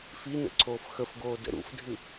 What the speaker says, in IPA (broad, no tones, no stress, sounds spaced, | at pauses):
f i n ə̰ ǀʰ oː f x ə f ɡ oː d ə̰ ɾ ṵ f dʱ ɨ